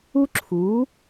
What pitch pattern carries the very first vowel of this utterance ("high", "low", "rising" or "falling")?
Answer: high